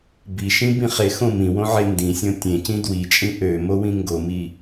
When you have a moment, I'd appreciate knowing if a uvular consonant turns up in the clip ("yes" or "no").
yes